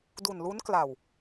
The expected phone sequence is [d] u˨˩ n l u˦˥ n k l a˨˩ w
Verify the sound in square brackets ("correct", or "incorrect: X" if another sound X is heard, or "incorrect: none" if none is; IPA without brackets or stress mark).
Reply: correct